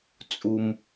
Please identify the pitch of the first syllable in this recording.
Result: high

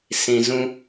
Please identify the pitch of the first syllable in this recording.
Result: low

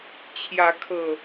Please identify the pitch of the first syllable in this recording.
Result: rising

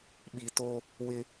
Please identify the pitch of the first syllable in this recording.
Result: low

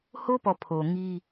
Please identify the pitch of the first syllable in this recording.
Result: high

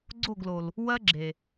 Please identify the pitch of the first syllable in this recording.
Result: falling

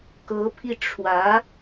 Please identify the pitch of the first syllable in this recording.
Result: rising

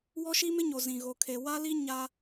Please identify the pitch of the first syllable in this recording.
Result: high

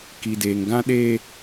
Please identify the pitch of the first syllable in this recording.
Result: low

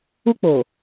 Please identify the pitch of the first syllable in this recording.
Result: high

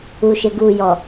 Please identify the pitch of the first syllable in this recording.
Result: low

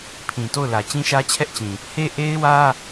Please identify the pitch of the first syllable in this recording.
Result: low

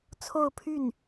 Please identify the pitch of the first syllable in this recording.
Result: falling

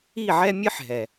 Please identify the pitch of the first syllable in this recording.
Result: falling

